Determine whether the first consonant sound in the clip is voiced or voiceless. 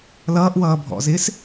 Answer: voiced